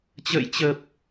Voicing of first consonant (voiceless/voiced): voiceless